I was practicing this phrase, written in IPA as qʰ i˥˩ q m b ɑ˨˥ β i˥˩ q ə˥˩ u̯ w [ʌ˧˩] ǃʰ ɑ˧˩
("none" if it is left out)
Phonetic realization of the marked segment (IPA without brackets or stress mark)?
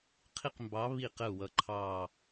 ʌ˧˩